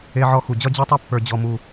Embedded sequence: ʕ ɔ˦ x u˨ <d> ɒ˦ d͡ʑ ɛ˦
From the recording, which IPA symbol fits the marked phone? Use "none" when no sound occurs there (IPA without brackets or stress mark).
d͡ʑ